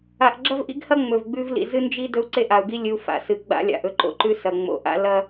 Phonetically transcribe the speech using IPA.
a˨ ʔ ɡ͡ǁ ɐ˦ v ʔ ḭ˦ ɡ h ɐ˦ ŋ͡m ɵ˨ v ɡ͡b ʉ˦ v l ḭ˨ z ɨ˦ n d͡ʒ i˦ d ɵ˦ u̯ ǀ e˦ ʔ a˨ u̯ ɡ i˦ lʲ ɨ˨ u̯ f a̰˨ s ɨ˨ ɡ͡b a̰˦ lʲ a̰˨ ʔ ɵ˦ ǃ o̰˦ ǃ ʉ˦ s ɐ˨ ŋ͡m o̰˨ ʔ a̰˦ l ɐ˦

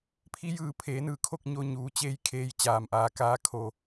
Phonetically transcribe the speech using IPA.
pʰ i˧˥ j ɯː˧˩ pʰ eː˩˧ n ɯː˧˩ kʰ o˥˨ k̚ ɲ o˧ ɲ uː˩˧ t͡ɕ eː˧˥ j kʰ eː˧ j t͡ɕ aː˩ m ʔ aː˩˧ k aː˧ kʰ o˩

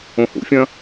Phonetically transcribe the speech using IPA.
õ h ṵ fʲ ɐ̃

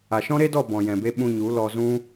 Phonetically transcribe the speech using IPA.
a˨ ʃ ɔ̃˦ ɾ e˦ d ɔ˦˨ b ɔ̃˨ j ɛ̃˨ b e˧ ɓ ũ˧ ɲ u˨˦ l ɔ˧ z ũ˦

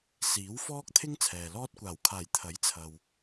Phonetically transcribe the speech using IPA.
s iː˨˥ w f ɔː˥ k̚ t̪ʰ ɪ˥ ŋ t͡sʰ ɛː˨ l ɔː˥ t̚ kʷ aː˨˩ w kʰ aː˨˩ j t̪ʰ ɐ˨˥ j t͡sʰ ɐ˨ w

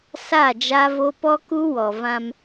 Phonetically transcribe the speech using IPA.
s a˦˨ d͡ʒ a˦ v o˦ p ɔ˦ k u˦ w ɔ˨ v ã˦ m

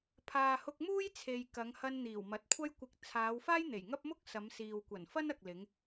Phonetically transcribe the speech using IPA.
pʰ aː˨ h ʊ˧ k̚ m uː˥ j t͡sʰ e˨ j k ɐ˨˧ ŋ h ɐ˧ n n̪ iː˨˩ w m ɐ˨˥ t̚ kʷʰ ɐ˥ j kʷ ɪ˧ k̚ t͡sʰ aː˨˧ w f aː˥ j n̪ e˨˩ j ŋ ɐ˥ p̚ m ʊ˥ k̚ s ɐ˨˧ m s iː˨ w kʷ ɐ˨˩ n f ɐ˥ n ɐ˨ k̚ l ɪ˨˧ ŋ

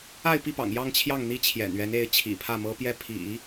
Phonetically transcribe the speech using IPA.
a˥˧ ɪ̯ p i˥˩ p ɑ̰˨˩ ŋ j ɑ˥˧ ŋ t͡ɕʰ j ɑ˥˩ ŋ n̪ i˥ t͡ɕʰ j ɛ̰˨˩ n ɥ ɛ˧˥ n e˧˥ ɪ̯ t͡ɕʰ ḭ˨˩ pʰ ä˥˩ m ɤ˥ p j ɛ˥˩ pʰ ḭ˨˩˦

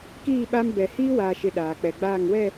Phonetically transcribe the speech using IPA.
k iː˦˨ ɓ a˦ m b ɛ˨ h iː˦ w aː˨ ʃ ɪ˨ ɗ aː˨ k͡p ɛ˨ ɡ͡b aː˦˨ ŋ w ɛ˦˨

